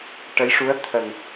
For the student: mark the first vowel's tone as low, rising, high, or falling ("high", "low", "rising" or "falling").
rising